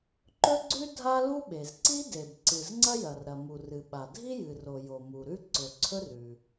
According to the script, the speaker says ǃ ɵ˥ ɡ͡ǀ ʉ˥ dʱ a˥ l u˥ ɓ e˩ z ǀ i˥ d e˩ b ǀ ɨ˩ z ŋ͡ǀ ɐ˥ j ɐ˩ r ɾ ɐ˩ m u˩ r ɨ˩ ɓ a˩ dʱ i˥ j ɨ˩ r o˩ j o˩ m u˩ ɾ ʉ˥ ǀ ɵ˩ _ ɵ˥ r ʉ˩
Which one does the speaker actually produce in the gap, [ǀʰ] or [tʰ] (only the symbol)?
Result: ǀʰ